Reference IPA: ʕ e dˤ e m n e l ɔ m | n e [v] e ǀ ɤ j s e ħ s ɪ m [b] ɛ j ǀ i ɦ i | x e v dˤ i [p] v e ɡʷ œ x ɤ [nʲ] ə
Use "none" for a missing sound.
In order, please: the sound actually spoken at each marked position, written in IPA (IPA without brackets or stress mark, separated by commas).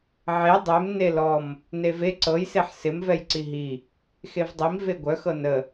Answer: v, v, m, n